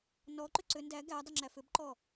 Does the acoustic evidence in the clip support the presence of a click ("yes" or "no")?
yes